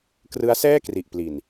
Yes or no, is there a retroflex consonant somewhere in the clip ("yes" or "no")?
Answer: no